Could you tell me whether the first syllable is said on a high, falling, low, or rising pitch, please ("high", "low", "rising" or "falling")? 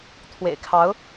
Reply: low